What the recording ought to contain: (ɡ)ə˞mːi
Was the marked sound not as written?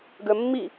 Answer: no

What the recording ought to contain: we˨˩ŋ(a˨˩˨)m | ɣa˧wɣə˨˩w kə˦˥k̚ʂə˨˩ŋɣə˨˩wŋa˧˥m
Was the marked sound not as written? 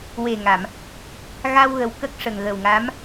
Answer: no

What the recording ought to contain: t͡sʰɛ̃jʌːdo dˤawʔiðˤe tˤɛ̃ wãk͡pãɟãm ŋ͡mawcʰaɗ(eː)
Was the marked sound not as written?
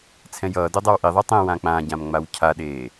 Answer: no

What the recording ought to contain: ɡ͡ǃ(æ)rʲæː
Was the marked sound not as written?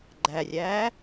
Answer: no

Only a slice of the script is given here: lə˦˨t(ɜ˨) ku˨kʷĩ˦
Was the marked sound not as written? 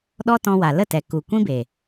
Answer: yes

